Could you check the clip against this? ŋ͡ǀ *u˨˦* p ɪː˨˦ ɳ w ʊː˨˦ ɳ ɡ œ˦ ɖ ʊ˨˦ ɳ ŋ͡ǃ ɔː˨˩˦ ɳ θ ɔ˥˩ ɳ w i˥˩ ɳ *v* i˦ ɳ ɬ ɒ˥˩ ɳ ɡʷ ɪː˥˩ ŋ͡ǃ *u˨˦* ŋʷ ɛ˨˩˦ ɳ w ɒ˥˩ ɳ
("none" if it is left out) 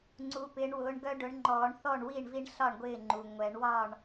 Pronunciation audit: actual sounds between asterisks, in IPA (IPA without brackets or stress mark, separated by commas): u˨˦, v, u˩